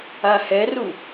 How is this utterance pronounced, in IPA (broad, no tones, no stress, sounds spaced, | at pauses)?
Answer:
a h ɛ r u